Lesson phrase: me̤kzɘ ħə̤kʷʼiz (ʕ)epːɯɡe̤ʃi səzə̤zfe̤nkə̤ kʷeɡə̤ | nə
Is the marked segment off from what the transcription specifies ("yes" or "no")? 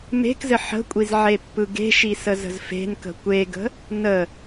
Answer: no